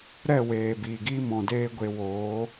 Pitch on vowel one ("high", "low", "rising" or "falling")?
falling